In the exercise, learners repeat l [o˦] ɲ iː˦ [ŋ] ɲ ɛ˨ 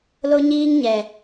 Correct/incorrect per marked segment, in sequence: correct, correct

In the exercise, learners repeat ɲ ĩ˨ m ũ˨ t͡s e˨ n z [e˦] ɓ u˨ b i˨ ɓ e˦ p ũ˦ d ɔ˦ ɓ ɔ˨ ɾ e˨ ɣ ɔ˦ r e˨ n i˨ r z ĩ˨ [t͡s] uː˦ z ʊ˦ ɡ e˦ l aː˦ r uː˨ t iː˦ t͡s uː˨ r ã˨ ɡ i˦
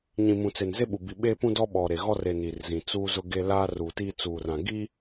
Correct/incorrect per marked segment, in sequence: correct, correct

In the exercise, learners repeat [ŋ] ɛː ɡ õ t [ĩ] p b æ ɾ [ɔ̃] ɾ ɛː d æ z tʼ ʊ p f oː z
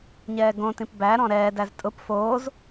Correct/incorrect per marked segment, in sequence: incorrect: ɲ, correct, correct

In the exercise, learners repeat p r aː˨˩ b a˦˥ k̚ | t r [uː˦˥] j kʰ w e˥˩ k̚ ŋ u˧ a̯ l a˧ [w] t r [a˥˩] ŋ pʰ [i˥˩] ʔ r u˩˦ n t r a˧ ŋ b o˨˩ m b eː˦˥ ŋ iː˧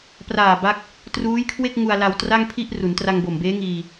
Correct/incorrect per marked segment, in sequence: correct, correct, correct, correct

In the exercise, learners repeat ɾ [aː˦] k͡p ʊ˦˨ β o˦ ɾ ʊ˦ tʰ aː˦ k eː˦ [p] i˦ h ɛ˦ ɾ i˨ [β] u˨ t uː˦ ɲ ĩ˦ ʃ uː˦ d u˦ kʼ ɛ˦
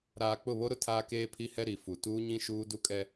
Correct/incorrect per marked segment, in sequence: incorrect: aː˨, incorrect: pʰ, incorrect: f

